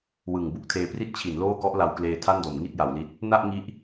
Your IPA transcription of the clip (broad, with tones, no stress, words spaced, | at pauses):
wɯ˨˩ŋ bu˥˩k̚tʰeː˧pri˥˩t̚t͡ɕʰi˩˦n loː˥˩kɔ˦˥ʔla˧wkleː˧ tʰa˥˩ndo˩˦mŋi˥˩t̚ ja˩˦wli˦˥t̚ | na˥˩ʔŋi˦˥ʔ